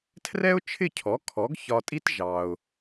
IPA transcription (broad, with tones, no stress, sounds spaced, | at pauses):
tʰ r ɛ˥ ʊ̯ t͡ʃʰ ɪ˥˩ cʰ ɔ˩˥ kʰ ɔ˩˥ ɡ ç ɒ˧ tʼ i˥ t ʒ ɑ˩ ʊ̯